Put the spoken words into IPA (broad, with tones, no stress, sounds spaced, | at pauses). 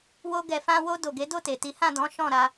w o˧ ɡ ɛ˨ f ã˧ w o˧ d o˨ ɡ e˨˦ d o˦˨ t e˨ t i˨˦ h ã˦˨ d ɔ̃˨˦ ʃ ɔ̃˦˨ ɾ a˧